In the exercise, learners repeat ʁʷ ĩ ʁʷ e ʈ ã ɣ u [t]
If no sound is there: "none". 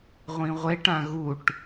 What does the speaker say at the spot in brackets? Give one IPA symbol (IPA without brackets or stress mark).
ʈ